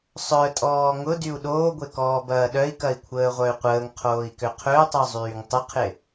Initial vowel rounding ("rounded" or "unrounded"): rounded